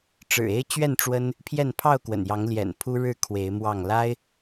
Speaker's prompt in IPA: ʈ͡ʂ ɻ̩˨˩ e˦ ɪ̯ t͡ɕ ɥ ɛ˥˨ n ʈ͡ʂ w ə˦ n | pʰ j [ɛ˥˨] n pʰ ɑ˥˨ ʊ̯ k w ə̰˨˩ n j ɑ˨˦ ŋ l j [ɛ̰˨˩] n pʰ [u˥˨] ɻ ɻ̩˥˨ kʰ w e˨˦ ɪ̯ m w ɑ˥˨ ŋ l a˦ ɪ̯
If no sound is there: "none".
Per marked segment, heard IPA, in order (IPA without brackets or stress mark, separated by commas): ɛ˥˨, ɛ̰˨˩, u˦